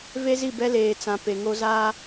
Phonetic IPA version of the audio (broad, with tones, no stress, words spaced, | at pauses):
ve˦zi˦˨bɛ˦ leː˨t͡sã˨ pe˨ŋo˦ zaː˦